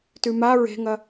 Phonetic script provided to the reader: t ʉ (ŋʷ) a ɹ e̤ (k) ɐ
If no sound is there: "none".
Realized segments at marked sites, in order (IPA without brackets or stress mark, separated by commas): m, ŋ